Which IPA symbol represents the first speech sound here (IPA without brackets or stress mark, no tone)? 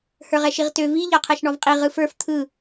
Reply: h